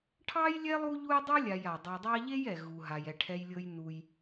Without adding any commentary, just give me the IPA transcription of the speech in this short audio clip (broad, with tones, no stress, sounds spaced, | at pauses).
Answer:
ʈʰ ɑ˥ j lʲ ɛ˥ lˠ u˦ ʎ u˦ j dˤ u˥ lʲ a˨ j a˩ dˤ e˨ dˤ ɑ˦ ʎ e˥ j ɛ˩ ɣ u˩ ɦ a˩ j ɛ˩ ʈʰ ɛ˨ j lʲ ɤ˨ j n u˩ j